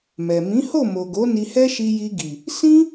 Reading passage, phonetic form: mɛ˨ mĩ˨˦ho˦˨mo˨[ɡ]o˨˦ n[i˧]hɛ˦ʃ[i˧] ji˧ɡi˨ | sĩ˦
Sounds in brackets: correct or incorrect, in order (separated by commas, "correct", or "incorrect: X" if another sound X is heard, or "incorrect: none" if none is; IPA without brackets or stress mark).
correct, correct, correct